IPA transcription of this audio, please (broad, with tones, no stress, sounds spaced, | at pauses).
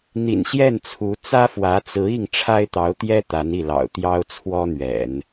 n̪ ḭ˨˩ n ɕ j ɛ˥˩ n t͡sʰ u˧˥ t͡s ä˥ f w ä˧˥ t͡s ɹ̩˧˥ i˥˩ ŋ ʈ͡ʂʰ a˥ ɪ̯ t̪ ɑ˧˥ ʊ̯ t̪ j ɛ˥ t̪ a˧˥ n i˥˩ l ɑ̰˨˩ ʊ̯ t̪ j ɑ˥ ʊ̯ t͡sʰ w ɔ˥ n̪ ɥ ɛ̰˨˩˦ n